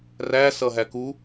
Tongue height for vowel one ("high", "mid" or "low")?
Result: low